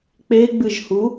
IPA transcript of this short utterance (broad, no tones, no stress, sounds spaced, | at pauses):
k͡p e ɡ͡b ɨ ʒ h u